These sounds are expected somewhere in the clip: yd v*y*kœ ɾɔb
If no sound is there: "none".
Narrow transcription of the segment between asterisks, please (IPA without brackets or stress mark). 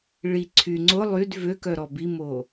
ø